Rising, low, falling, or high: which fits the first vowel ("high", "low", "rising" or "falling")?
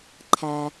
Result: low